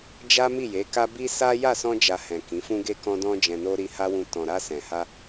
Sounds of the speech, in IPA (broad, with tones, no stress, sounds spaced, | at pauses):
d͡ʒ a˦ m i˦˨ j e˨˦ k a˦ b i˦ s a˦ j a˦˨ s ɔ̃˧ d͡ʒ a˨ h ɛ̃˨ k ĩ˨˦ f ũ˦ ɡ e˦ k ɔ̃˧ d ɔ̃˧ d͡ʒ ɛ̃˨ n o˧ ɾ i˧ h a˦ w ũ˧ t ɔ̃˨ ɾ a˧ s ɛ̃˨ h a˧